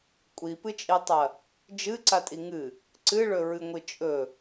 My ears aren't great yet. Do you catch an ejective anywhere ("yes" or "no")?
yes